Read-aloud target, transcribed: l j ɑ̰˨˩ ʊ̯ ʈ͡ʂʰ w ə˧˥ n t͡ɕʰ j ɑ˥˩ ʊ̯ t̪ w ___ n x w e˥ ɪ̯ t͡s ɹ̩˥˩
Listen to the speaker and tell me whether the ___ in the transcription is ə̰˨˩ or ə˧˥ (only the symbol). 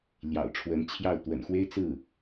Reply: ə̰˨˩